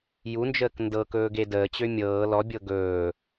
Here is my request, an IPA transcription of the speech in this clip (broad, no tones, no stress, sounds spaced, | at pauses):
j u n d͡ʒ əː k n d ɤ k ɵː ɡ e d əː t͡ɕ ø mʲ ɤː l ɔ bʲ ɤ ɡ ɵː